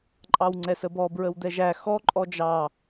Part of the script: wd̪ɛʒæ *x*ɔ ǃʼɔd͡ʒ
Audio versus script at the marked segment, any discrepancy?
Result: no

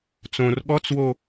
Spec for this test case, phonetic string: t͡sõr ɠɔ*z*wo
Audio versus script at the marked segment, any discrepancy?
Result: yes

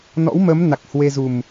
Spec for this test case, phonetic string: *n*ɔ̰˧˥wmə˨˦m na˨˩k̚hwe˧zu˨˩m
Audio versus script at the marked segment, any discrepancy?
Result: no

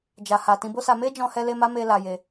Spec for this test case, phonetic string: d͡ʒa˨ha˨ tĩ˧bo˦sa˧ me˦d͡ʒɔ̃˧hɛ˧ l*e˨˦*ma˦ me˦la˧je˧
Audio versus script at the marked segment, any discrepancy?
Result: yes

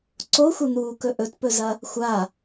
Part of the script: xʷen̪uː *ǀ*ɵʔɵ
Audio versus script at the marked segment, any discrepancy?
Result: yes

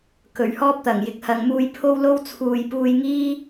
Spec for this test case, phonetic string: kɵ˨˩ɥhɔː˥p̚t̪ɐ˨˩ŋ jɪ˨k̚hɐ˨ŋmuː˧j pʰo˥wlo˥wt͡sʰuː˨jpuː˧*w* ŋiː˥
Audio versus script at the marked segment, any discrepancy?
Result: yes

